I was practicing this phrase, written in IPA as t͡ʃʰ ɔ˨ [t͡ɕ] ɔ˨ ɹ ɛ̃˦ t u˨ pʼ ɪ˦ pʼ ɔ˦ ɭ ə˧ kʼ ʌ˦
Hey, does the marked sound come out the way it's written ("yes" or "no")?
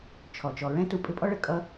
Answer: no